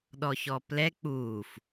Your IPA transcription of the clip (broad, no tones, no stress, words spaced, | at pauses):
ɗɔçɔplɛ k͡puːf